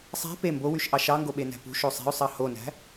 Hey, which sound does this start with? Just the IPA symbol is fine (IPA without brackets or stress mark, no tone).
sˤ